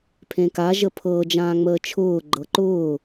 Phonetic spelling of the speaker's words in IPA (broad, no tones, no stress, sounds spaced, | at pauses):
pʰ ẽ k a ʒ ə pʰ ɤ d͡ʒ ãː ŋ͡m əː t͡ʃʰ ʊː ɡ͡ǃ ɤ ǃ ʊː